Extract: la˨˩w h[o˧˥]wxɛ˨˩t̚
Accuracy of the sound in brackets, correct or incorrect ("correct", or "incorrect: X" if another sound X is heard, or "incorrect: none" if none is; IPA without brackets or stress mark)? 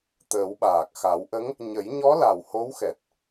correct